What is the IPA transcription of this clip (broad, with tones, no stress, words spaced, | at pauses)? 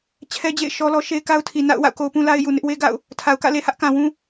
t͡ɕʰɛ˦ d͡ʑḛ˦˨ɪ̯ ʃɔ˦lɔ˦ ʃe˦ɪ̯ka˦ʊ̯tʰi˨ na̰˦˨ʊ̯ wa̰˦˨ʊ̯ko˦ʊ̯pũ˦la˦ɪ̯ ju˨nɪ˦ʔwe˦ ɡa̰˦˨ʊ̯ | tʰa˨ʊ̯kä̰˦˨ le˨hä˦ʔkã˨wũ˦